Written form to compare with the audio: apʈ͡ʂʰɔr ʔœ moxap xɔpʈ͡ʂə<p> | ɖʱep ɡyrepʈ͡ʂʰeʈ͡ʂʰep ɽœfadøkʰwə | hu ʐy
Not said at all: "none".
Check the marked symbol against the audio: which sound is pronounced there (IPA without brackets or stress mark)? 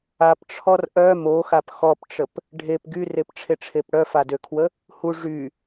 p